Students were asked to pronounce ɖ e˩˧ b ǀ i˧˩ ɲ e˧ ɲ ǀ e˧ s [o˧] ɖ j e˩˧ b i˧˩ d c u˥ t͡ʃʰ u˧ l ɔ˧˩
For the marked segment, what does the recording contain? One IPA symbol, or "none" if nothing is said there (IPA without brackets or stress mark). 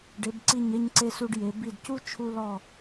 u˧